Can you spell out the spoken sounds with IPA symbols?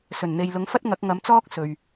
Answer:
s ɵ˨˩ n n̪ e˨ j l ʊ˨˥ ŋ f ɐ˥ t̚ ŋ ɐ˨˥ k̚ ŋ ɐ˨˥ m t͡s ɔː˥ k̚ s ɵ˨ ɥ

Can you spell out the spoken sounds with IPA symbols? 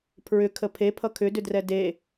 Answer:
pʰ ɹ ʏ kʰ ə pʰ e pʰ ʌ kʰ ʏ d ʏ d r ɛ d e

